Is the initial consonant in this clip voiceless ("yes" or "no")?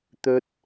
yes